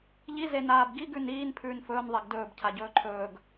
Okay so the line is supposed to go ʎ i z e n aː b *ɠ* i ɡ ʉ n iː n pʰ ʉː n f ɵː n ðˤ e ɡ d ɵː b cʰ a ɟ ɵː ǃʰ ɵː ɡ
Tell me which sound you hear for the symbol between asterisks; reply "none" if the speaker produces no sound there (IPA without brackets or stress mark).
ɡ